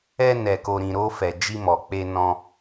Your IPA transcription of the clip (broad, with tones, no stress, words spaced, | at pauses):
ɛ˧nɛ˨ko˨ɾĩ˨ ɾo˧fɛ˨ d͡ʒi˧mɔ˨k͡pe˧ nɔ̃˧